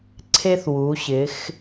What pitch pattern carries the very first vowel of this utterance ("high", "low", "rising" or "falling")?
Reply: high